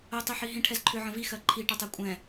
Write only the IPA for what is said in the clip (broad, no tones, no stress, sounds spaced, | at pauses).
ə tˤ i ħ i ɦ ĩ ʈʰ ɛ z ǃʰ ʏ ʕ ə̃ v i x ɜ ǃʰ i ʈ ə tˤ ɛ kʷʼ ɛ̃